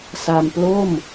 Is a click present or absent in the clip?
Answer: absent